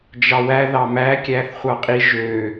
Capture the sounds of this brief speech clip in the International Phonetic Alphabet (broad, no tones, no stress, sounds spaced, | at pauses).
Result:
d͡ʒ ɑ w æ ð ɑ m æ kʲ æ θ χʷ ɑ qʼ i ʒ ø